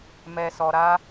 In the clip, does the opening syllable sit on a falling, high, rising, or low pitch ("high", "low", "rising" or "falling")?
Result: low